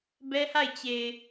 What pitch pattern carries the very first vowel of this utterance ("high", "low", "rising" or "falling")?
high